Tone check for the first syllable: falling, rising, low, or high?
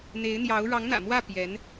rising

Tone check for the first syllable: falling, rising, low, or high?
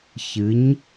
rising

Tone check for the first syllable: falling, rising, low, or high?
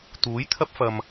rising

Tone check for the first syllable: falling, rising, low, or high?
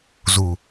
low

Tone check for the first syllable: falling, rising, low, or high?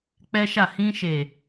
high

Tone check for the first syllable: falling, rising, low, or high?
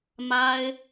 high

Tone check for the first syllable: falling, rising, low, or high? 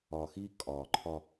low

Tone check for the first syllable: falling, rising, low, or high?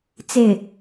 falling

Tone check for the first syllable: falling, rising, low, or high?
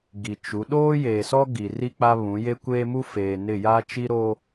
low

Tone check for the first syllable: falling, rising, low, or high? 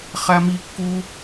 high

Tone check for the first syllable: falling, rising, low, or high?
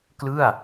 falling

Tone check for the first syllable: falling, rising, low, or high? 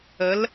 rising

